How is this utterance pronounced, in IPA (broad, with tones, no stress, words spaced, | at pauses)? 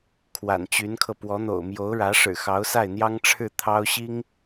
kʰwa̰˨˩nt͡ɕy˧˥nkʰɤ˧ pwɔ˧˥n̪o̰˨˩ʊ̯ mjo˧˥ʊ̯ɻä˧˥ʂɻ̩˨˩ xɑ˧˥ʊ̯sa˥˩ɪ̯ n̪jɑ˥ŋʈ͡ʂʰɻ̩˥˩ t̪ʰɑ˥ʊ̯ɕi˥ŋ